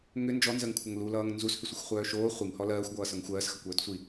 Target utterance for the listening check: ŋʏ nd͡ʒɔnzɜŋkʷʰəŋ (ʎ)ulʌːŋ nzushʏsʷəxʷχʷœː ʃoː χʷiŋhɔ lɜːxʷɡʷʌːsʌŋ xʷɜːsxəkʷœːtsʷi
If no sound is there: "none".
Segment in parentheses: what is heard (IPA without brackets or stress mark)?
l